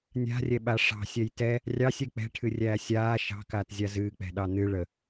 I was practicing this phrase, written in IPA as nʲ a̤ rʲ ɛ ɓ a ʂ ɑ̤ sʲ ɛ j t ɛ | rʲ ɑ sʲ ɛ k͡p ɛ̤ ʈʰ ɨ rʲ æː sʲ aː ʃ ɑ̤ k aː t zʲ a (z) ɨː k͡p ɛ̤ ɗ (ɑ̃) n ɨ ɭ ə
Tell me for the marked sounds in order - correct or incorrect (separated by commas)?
correct, incorrect